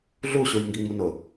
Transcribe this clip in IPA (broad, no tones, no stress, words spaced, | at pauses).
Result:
ɮu ɕujŋɡiŋ͡munʊ